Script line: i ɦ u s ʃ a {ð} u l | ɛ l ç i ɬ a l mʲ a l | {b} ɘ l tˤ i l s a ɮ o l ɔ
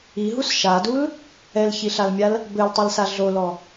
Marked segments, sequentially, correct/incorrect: incorrect, correct

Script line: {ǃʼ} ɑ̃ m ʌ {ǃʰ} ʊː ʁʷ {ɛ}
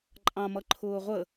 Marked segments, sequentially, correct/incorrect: correct, correct, incorrect

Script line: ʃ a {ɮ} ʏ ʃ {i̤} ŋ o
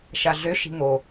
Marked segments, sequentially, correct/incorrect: correct, correct

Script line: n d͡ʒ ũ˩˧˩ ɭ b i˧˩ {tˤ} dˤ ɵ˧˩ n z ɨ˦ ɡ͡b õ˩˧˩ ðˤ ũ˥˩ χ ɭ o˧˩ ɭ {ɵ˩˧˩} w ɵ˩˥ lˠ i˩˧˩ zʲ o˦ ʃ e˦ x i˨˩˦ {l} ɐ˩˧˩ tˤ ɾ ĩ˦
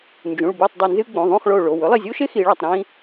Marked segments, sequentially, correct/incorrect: correct, incorrect, incorrect

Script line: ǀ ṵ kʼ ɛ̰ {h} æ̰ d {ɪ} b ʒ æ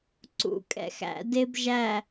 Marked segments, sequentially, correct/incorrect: incorrect, correct

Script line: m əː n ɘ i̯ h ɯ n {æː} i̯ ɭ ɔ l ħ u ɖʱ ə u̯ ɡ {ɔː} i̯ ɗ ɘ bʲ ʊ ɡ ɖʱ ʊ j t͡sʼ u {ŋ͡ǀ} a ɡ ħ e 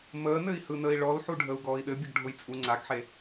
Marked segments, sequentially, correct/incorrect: incorrect, correct, correct

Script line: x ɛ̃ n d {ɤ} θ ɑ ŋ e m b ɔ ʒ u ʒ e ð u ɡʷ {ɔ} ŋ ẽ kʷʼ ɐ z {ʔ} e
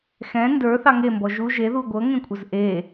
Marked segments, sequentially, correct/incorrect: incorrect, incorrect, correct

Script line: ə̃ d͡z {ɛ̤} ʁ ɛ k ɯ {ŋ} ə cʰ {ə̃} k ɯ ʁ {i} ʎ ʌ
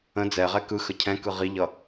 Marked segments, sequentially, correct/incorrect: incorrect, incorrect, incorrect, correct

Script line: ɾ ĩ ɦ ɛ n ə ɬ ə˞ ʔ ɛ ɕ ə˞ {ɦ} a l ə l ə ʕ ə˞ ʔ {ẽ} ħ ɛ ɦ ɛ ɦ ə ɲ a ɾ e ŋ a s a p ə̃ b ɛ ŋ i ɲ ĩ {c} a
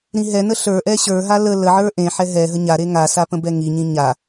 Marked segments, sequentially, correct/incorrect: correct, correct, incorrect

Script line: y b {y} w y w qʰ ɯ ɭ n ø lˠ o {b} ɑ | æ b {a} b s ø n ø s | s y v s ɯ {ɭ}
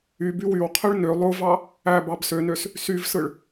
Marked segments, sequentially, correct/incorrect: correct, incorrect, incorrect, correct

